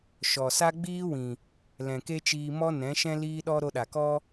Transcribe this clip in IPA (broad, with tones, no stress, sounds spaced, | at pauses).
ʃ ɔ˨ s a˦ ɡ͡b iː˦ w ĩ˨ | l ɛ̃˨ k e˦ t͡ʃ iː˧ m ɔ˦ n ɛ̃˨˦ ʃ ɛ̃˦ l iː˦ ɗ ɔ˦ ɾ o˧ ɗ a˨ k ɔ˦